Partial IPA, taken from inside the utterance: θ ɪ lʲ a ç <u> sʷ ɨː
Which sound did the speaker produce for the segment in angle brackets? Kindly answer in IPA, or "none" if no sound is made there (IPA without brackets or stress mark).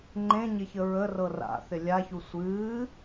u